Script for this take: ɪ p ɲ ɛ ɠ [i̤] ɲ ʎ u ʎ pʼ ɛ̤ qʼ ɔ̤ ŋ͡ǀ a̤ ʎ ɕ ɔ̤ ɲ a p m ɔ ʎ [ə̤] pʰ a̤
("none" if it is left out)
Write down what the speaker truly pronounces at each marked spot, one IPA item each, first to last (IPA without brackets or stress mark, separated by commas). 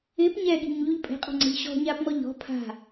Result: i̤, ɔ̤